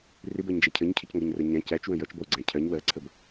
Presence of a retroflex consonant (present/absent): absent